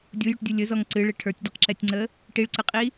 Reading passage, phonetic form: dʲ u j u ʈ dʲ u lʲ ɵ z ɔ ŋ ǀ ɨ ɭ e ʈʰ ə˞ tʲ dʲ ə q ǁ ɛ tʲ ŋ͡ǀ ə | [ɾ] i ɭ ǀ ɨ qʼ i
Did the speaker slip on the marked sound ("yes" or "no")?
yes